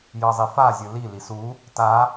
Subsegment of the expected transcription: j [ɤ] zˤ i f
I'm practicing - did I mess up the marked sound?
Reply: no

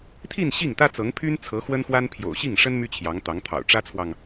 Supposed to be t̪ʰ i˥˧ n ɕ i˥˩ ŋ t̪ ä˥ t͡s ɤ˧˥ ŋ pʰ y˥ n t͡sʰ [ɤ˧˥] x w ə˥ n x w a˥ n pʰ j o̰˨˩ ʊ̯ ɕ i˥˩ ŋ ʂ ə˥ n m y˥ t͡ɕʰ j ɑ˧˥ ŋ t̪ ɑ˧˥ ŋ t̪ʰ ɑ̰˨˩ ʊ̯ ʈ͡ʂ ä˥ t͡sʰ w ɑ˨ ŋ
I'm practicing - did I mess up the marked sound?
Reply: no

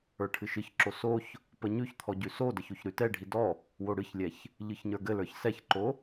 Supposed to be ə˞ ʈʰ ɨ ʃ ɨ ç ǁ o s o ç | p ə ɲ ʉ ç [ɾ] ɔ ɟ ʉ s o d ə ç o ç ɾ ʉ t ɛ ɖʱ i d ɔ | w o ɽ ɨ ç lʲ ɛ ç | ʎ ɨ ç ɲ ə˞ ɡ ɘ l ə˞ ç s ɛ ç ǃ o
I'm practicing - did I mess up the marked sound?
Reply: yes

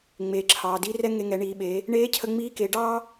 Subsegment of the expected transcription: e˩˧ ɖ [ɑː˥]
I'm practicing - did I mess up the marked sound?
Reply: no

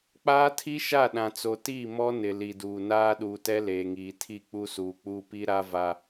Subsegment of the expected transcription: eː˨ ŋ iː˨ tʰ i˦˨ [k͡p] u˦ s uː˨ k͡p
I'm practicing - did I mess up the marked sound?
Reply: no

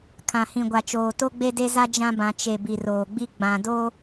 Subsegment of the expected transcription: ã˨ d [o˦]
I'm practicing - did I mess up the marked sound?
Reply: no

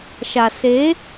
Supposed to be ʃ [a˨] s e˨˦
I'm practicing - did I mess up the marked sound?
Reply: no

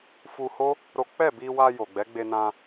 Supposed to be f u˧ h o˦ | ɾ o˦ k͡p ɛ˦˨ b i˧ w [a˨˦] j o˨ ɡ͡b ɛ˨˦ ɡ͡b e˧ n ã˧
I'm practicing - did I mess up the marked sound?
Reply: yes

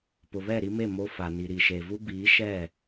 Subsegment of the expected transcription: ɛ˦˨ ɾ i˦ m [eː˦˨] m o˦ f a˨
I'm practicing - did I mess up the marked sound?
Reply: yes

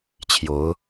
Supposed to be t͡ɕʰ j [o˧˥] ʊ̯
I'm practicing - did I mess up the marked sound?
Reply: no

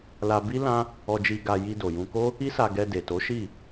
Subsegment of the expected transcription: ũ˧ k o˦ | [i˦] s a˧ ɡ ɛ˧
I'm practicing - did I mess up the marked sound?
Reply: no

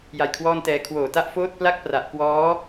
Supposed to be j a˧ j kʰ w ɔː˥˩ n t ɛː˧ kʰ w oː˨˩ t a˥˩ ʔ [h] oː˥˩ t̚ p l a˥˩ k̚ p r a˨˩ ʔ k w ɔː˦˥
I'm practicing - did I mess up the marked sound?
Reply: yes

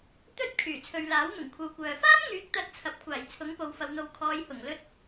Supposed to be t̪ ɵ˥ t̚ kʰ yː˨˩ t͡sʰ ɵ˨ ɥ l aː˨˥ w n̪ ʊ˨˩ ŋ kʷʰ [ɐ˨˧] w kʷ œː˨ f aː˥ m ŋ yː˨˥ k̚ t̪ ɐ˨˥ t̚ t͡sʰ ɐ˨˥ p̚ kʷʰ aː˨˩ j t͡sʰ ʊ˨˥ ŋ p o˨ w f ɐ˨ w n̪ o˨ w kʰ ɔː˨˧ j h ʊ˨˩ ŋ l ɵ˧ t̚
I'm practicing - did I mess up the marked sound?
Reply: no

